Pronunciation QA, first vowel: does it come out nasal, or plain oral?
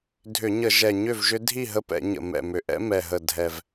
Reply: oral